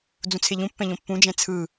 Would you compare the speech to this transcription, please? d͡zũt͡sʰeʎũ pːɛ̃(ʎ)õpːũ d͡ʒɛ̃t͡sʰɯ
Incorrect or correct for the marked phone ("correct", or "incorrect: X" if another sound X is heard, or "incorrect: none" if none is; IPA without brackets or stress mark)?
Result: correct